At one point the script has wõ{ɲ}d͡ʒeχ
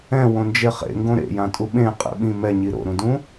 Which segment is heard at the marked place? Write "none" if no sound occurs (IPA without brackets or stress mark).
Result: n